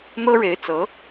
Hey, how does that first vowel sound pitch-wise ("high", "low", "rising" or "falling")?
high